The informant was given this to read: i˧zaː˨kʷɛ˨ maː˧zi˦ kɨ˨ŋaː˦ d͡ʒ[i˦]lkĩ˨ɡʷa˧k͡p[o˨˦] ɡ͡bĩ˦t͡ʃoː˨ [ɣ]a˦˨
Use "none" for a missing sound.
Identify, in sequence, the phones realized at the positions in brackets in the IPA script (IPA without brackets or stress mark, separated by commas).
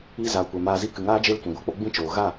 e˦, o˦, ɣ